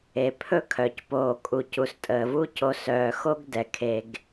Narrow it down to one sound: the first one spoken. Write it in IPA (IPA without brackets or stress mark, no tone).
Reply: e